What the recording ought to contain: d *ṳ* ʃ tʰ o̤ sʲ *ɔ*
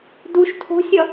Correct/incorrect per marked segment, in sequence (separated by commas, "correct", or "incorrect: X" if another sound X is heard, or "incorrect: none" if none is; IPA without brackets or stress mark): incorrect: u, incorrect: ʌ